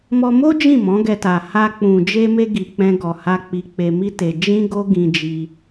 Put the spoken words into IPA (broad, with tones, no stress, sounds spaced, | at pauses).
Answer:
m ɔ˧ m o˦ d͡ʒ ĩ˦˨ m ɔ̃˨˦ ɡ ɛ˧ t a˨ h a˧ k͡p ũ˨ d͡ʒ e˧ m e˧ ɡ i˨ k͡p ɛ̃˧ ɡ ɔ˨ h a˧ k͡p i˧ k͡p e˧ m i˦ t e˧ d͡ʒ ĩ˦ ɡ o˦ ɡ ĩ˧ d͡ʒ i˧